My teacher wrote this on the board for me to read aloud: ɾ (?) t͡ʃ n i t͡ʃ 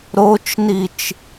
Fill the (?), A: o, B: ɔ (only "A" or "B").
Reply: A